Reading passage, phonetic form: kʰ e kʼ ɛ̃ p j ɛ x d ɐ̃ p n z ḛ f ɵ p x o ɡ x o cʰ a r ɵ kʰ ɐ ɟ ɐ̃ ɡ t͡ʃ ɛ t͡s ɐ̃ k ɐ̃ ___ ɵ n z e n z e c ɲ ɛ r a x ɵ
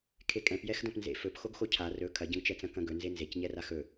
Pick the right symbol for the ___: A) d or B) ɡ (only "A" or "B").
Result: B